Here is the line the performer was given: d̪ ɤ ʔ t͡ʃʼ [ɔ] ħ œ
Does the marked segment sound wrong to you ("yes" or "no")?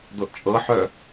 yes